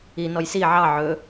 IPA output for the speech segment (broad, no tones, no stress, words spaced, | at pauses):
i nɔjsi ʕɑ ʕɵ